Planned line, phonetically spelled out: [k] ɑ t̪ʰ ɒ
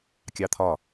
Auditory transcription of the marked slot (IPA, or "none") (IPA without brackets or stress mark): kʲ